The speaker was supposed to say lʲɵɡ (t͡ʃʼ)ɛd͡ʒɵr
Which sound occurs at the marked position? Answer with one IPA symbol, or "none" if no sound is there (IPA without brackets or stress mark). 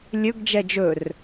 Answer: d͡ʒ